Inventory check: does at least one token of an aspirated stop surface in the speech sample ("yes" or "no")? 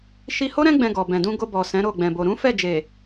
no